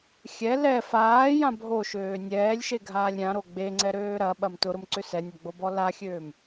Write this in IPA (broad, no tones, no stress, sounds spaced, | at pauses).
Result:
xʲ ɛ l ɛ f aː j ã bʱ o ʃ øː nʲ ɛː lʲ ʃ e ɡʱ aː lʲ ɾʲ ã ɾ o ɡ͡b e ŋ͡ǀ ɛ ɾ øː ɾ ɐ ɓ ɐ m t ʊ ɾ ʊ m ǀ ʏ s ɛ nʲ ɐ ɡ͡b o b ɔ l a xʲ øː m